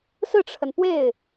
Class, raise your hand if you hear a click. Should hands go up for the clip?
no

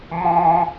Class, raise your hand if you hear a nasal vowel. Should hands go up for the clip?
yes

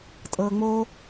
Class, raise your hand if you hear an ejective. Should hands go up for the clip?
yes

